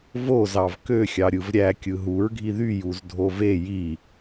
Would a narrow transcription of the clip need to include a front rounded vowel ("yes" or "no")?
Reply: yes